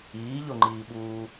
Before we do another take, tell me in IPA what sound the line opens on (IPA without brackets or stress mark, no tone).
iː